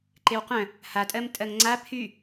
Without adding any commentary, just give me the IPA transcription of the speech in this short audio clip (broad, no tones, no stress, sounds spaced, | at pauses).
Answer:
ǃ e w q œ̃ | h a tʼ ɜ m tʼ ɜ ŋ ŋ͡ǀ a pʰ y